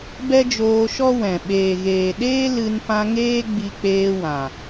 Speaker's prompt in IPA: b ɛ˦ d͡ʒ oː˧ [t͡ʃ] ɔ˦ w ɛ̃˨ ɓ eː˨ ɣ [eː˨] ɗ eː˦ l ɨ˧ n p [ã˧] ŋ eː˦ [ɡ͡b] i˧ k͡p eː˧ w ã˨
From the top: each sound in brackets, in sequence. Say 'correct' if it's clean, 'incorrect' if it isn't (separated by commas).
incorrect, correct, correct, correct